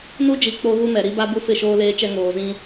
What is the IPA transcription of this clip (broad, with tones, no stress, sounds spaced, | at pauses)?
n u˦ d͡ʒ i˨ k͡p o˦ ɣ u˦ m ɛ˨ ɾ i˦ b a˦ b u˦ f ɪ˦˨ ʃ oː˦ l eː˦ t͡ʃ ɛ˦ ŋ oː˨ z ĩ˦